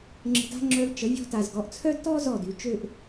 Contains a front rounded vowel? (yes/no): yes